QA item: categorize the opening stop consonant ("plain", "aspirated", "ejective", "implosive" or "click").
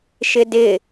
plain